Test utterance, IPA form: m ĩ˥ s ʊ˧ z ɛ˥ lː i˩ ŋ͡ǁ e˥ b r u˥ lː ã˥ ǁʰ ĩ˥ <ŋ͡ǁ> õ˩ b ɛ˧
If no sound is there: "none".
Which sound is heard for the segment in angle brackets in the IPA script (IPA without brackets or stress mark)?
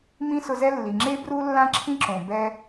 ǁ